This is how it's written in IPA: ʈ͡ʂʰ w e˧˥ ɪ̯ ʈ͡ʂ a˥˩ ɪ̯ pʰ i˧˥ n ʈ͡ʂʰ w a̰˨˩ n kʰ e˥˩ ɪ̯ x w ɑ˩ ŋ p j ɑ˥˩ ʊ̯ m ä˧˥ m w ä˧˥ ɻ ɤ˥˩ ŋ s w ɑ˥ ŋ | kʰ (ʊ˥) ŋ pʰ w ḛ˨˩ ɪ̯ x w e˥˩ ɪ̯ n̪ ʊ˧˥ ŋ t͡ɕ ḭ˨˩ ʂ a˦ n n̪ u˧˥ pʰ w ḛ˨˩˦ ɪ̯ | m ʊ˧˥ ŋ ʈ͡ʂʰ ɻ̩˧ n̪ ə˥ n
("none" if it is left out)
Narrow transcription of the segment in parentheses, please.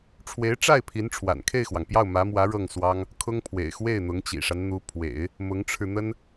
ʊ˥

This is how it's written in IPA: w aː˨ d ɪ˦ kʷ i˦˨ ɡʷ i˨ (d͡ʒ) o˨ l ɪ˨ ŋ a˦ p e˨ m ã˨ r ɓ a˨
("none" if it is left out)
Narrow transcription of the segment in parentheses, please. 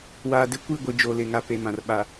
d͡ʒ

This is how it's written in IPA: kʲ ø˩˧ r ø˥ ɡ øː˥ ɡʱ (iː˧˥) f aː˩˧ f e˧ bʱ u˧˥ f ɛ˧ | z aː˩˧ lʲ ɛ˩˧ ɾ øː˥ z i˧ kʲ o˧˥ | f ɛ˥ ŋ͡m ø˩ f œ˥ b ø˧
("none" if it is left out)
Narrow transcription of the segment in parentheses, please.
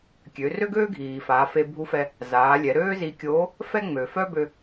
iː˩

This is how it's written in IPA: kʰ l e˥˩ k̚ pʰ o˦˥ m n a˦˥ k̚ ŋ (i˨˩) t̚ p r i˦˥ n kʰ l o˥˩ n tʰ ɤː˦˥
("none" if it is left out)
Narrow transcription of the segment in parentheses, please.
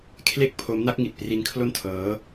i˨˩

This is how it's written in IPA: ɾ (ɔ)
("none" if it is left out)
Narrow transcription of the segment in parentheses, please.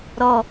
ɔ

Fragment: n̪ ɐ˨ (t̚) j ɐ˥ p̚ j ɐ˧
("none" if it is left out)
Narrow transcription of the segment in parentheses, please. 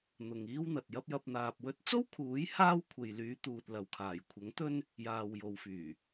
t̚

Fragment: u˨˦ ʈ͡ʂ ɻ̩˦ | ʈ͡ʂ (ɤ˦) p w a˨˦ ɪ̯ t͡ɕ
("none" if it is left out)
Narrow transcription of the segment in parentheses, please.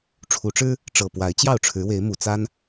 ɤ˨˩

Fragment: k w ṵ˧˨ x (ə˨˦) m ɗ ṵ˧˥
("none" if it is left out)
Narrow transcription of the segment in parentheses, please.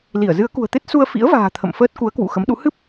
ə˨˦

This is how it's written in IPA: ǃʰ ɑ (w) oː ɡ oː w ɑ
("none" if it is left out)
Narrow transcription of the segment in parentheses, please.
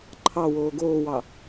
w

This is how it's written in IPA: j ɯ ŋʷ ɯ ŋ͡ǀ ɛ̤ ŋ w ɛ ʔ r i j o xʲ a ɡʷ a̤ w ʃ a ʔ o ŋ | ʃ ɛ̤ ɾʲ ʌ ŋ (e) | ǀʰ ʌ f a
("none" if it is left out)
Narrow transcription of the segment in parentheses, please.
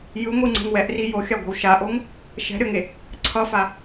e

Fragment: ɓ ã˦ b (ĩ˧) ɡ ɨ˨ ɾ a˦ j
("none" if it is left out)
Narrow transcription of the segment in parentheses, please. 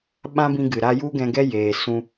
ĩ˧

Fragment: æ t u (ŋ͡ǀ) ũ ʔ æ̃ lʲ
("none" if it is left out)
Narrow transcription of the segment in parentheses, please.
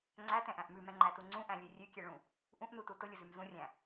ŋ͡ǀ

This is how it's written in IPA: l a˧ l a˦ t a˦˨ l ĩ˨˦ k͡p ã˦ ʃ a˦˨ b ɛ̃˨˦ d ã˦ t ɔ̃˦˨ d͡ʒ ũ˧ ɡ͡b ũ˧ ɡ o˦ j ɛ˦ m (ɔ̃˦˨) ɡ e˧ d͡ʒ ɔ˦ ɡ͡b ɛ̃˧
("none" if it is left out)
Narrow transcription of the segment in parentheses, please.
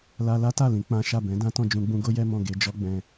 ɔ̃˦˨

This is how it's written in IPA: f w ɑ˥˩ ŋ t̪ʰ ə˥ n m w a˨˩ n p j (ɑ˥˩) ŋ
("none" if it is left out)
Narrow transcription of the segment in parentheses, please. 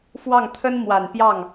ɑ˥˩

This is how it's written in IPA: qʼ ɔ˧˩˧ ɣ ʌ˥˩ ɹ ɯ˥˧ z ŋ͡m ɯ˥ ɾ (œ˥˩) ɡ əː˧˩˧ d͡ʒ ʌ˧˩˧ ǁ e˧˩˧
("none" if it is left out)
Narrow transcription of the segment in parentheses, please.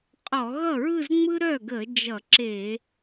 œ˥˩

